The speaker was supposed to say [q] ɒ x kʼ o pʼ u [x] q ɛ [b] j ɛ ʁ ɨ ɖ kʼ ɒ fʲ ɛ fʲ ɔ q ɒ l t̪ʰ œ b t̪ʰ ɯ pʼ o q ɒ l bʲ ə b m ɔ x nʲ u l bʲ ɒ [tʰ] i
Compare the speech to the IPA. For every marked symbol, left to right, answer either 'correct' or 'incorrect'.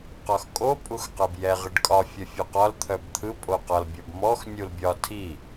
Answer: correct, correct, correct, correct

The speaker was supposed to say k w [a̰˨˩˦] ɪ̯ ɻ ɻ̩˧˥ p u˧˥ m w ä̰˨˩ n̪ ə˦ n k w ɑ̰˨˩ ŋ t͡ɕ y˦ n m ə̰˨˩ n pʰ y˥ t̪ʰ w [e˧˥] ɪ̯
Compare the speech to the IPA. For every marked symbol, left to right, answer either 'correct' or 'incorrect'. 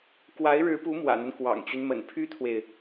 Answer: incorrect: a˧˥, incorrect: e˨

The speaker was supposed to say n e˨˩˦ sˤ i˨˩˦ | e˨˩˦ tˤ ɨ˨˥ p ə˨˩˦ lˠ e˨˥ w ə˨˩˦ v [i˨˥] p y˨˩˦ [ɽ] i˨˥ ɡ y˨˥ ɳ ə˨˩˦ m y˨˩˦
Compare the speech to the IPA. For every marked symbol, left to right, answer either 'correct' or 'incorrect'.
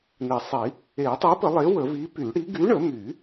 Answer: correct, correct

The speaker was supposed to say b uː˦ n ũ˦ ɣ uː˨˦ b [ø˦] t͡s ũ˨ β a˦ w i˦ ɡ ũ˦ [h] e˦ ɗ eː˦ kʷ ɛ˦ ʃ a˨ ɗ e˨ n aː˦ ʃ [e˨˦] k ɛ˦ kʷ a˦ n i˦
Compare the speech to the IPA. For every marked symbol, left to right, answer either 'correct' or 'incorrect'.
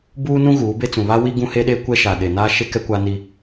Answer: incorrect: e˦, correct, incorrect: e˦

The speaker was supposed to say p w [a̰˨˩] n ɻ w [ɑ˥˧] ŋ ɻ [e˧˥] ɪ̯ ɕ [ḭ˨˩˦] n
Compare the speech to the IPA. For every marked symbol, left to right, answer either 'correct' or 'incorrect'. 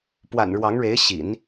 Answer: correct, incorrect: ɑ˧˥, correct, correct

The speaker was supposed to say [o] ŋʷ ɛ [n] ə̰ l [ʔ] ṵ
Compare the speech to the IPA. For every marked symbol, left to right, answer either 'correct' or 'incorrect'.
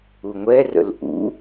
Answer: incorrect: u, incorrect: r, correct

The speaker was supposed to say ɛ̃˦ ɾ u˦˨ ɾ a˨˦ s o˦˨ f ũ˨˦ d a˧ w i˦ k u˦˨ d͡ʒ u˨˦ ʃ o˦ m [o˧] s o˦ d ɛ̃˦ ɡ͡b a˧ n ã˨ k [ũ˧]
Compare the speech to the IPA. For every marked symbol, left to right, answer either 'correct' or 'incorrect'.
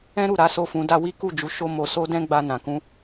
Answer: correct, correct

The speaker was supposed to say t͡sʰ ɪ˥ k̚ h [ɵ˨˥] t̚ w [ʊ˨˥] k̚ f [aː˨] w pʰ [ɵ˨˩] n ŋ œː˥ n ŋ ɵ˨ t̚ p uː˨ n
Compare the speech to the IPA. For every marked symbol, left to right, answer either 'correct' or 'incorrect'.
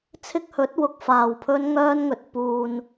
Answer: correct, incorrect: ʊ˨, correct, incorrect: ɵ˥

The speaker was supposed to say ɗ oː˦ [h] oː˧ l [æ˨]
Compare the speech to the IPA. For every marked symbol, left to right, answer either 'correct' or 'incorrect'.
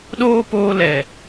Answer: incorrect: p, incorrect: ɛ˨

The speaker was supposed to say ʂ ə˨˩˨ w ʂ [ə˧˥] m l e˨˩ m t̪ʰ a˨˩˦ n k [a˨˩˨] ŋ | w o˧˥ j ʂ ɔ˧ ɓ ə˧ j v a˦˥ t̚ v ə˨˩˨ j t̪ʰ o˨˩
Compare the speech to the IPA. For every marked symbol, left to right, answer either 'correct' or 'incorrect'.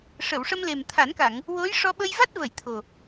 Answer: incorrect: ə˧, correct

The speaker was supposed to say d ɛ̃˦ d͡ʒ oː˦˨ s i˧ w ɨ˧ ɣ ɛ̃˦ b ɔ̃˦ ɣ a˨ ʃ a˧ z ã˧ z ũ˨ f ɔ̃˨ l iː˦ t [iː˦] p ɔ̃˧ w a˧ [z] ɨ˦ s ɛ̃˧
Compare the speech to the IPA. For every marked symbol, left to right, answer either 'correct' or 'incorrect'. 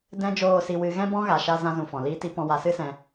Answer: incorrect: i˦, incorrect: s

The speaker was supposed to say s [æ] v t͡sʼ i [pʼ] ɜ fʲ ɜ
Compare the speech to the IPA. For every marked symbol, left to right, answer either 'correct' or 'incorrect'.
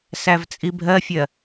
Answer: correct, incorrect: bʱ

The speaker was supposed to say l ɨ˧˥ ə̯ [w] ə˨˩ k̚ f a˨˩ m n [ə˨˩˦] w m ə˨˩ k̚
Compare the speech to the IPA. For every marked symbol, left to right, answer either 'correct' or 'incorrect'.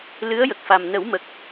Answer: incorrect: j, correct

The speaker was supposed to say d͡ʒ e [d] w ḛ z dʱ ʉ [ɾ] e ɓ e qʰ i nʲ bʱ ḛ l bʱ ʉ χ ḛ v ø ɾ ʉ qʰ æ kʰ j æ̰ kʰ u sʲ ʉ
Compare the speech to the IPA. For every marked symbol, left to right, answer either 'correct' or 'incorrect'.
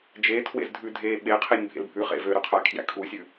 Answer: incorrect: tʰ, incorrect: dʱ

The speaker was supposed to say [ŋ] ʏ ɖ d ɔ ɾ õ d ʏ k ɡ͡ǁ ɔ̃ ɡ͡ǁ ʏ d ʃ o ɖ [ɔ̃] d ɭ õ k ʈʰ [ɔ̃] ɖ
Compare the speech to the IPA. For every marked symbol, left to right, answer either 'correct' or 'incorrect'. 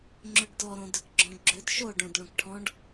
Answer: incorrect: ŋ͡ǁ, incorrect: õ, correct

